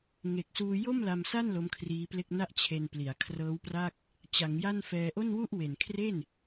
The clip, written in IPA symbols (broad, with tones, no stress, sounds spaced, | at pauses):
ŋ e˨˩ k̚ s uː˧ j o˥˩ m l a˧ m s a˥˩ n l o˦˥ m kʰ r iː˦˥ p l e˥˩ k̚ n a˥˩ ʔ t͡ɕʰ e˧ n p l i˩˦ a̯ kʰ r ɤː˦˥ w p r a˥˩ k̚ | t͡ɕ a˩˦ ŋ j a˥˩ n f ɛː˧ ʔ o˥˩ n w u˥˩ ʔ w e˨˩ n kʰ r e˥˩ n